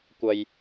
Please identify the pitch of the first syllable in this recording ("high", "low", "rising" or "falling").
low